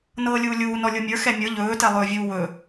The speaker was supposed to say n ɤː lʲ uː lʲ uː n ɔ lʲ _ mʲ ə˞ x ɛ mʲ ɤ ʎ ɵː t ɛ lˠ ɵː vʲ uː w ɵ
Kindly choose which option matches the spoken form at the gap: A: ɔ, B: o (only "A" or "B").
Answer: B